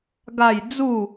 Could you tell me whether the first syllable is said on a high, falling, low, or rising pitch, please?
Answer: falling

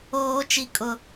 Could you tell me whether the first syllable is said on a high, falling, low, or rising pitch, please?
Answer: high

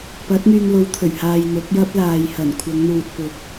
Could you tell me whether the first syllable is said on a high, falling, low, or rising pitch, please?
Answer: rising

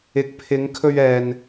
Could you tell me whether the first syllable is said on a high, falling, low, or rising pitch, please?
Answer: low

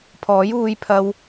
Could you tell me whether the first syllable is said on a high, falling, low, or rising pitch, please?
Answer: rising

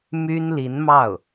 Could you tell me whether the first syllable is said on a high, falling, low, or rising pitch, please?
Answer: high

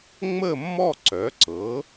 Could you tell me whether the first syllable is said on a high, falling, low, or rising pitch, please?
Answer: falling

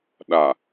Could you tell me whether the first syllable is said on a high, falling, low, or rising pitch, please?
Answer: low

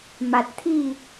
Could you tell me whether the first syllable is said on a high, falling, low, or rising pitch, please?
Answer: low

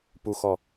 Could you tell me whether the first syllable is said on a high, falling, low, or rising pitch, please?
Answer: low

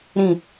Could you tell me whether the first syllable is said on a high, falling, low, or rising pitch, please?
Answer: low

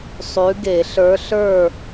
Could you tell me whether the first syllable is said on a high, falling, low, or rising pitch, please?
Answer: rising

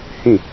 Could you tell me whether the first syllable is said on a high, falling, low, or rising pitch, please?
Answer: falling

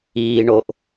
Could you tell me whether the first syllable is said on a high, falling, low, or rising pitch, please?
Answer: low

